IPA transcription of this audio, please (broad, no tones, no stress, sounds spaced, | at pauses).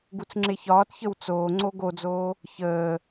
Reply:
ɡ u t͡s ŋ͡ǁ e ç ɒː t ç ə w t͡s oː ŋ͡ǀ o ɡ o d͡z oː | ç əː